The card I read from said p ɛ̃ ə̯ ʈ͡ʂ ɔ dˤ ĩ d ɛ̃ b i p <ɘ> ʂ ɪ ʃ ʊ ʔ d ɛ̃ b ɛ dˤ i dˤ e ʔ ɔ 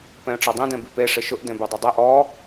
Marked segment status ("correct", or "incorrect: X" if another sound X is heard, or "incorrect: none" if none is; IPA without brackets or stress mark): incorrect: e